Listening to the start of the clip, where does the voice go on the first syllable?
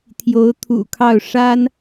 rising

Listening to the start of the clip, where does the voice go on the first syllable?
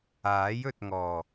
rising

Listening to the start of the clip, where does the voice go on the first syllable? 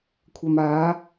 low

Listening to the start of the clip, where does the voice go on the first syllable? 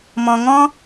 low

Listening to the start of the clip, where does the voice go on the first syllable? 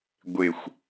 falling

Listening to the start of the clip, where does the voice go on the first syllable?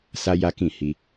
high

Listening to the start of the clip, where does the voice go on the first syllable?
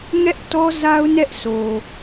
high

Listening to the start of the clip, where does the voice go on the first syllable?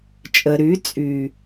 low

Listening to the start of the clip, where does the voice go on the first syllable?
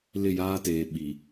falling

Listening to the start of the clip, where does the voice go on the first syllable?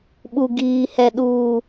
low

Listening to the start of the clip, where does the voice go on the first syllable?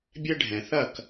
high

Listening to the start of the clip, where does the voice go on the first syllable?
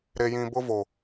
low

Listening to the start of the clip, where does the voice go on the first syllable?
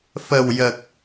low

